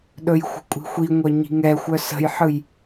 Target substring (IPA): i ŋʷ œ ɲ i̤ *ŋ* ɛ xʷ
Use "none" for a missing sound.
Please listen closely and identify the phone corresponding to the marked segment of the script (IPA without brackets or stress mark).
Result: ŋ